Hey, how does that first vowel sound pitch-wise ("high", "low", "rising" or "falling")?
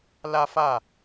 high